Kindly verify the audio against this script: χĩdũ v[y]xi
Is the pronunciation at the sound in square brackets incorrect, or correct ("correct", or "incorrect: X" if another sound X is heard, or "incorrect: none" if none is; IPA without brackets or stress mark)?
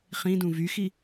correct